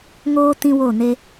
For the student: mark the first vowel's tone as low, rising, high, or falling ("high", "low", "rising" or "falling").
high